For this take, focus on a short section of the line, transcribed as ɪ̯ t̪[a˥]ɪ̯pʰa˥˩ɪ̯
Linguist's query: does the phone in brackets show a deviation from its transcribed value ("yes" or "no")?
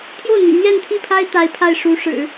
yes